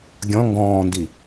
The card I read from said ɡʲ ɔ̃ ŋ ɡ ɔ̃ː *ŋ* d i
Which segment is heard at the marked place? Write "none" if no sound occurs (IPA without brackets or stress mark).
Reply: n